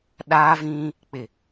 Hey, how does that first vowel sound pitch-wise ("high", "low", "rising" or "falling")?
high